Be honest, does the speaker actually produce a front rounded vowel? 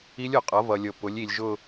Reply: no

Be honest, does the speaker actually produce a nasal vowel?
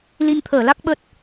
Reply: no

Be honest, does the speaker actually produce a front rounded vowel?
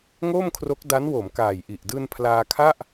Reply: no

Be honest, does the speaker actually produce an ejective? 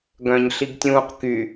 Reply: no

